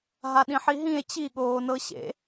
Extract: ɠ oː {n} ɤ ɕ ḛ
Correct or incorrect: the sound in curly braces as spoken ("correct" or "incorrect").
correct